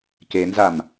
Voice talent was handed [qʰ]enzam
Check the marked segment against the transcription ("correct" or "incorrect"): incorrect